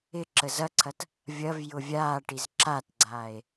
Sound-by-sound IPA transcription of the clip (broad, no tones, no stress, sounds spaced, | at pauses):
ɪ ǁ ə z ɐ ǀʰ ɐ t | vʲ ɐ v j ʊ vʲ aː ʈ i z ǁ a t ɡ͡ǀ aː e̯